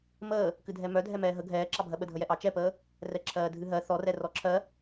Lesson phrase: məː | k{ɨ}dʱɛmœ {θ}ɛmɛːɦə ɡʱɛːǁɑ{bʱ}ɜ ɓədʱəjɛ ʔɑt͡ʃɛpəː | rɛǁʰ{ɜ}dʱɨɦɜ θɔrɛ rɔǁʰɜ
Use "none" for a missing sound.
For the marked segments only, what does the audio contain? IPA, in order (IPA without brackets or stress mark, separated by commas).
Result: ɨ, dʱ, bʱ, ɜː